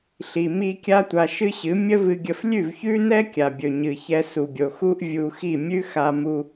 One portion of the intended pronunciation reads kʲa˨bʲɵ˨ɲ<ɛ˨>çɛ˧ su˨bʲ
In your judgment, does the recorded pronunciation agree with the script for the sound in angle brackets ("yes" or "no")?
no